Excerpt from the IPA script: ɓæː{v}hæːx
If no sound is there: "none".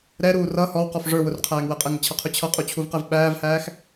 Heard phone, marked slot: v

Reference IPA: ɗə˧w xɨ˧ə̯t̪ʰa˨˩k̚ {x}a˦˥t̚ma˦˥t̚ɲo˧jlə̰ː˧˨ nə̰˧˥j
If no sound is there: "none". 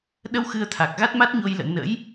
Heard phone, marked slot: ɣ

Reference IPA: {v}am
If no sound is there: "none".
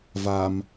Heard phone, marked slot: v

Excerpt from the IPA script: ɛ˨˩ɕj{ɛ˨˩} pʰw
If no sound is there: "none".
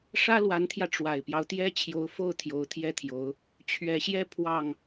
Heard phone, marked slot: ɛ˥˧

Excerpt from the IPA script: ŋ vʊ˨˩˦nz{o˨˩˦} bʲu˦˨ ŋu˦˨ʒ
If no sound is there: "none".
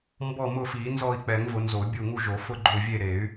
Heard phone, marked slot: o˨˩˦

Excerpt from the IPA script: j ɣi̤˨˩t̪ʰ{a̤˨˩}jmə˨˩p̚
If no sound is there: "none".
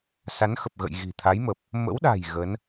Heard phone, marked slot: a˨˦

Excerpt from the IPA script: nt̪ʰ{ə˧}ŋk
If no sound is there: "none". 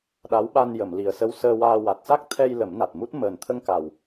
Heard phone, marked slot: ə˧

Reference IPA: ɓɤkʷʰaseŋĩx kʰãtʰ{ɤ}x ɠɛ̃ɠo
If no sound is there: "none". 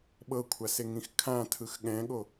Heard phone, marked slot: ɯ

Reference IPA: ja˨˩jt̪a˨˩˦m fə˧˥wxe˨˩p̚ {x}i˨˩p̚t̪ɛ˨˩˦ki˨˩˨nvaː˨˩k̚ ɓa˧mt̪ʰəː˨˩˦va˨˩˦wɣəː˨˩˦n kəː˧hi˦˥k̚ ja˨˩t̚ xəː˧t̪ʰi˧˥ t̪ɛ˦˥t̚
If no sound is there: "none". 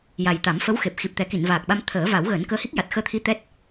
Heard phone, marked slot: x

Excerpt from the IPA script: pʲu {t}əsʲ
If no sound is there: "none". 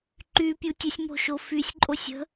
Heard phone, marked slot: tʲ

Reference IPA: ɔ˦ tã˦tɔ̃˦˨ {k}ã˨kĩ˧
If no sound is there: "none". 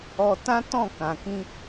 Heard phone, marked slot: k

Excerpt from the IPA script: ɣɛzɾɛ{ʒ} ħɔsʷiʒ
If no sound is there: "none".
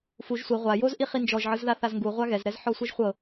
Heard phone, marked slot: z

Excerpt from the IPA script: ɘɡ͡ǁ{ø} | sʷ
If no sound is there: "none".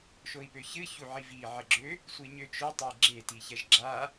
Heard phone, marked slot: ø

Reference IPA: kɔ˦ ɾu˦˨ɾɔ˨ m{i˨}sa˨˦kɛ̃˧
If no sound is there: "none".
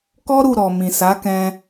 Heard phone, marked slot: ĩ˨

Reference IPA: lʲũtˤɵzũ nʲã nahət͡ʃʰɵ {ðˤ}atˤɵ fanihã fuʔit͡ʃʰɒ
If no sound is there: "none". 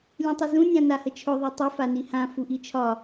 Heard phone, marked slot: ðˤ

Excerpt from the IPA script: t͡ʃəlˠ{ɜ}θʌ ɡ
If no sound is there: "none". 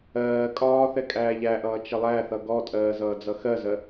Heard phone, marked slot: æ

